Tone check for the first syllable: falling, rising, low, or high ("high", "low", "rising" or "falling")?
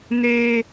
high